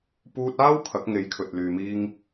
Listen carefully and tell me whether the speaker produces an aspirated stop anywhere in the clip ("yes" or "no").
yes